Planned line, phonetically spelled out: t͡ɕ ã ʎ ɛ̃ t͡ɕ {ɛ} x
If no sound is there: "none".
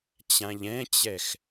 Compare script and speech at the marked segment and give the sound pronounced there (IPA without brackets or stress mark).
ɛ